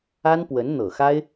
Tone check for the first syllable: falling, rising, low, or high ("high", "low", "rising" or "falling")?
high